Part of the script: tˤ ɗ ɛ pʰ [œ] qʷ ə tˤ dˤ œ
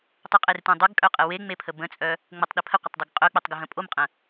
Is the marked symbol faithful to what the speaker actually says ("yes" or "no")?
no